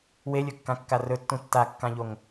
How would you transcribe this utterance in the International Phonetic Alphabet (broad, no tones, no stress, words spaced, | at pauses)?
welʲɵkːãkːa rɵtːũ tːakːãʎoŋ